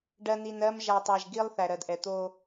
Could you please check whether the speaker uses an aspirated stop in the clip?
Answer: no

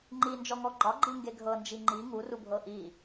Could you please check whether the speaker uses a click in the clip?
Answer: yes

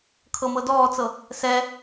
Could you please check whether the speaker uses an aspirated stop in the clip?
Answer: yes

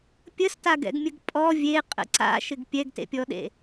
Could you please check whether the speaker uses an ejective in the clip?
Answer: yes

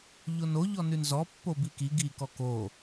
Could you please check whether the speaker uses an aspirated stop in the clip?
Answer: no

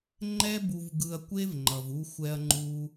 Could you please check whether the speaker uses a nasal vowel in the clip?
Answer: no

